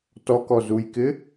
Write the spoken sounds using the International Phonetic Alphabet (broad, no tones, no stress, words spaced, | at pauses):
tɔkɔzujkɪ